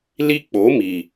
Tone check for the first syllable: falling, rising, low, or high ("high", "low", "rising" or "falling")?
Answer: high